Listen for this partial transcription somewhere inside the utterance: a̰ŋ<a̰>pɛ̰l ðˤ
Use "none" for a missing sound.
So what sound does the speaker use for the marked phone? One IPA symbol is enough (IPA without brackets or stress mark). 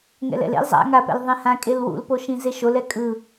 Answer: a